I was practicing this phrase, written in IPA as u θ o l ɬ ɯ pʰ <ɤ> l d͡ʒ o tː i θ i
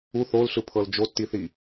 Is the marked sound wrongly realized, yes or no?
no